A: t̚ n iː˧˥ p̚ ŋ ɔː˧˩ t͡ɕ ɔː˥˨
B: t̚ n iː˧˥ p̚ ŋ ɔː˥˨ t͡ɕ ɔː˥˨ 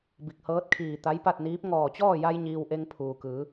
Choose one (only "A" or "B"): A